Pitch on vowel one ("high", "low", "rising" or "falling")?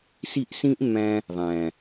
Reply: falling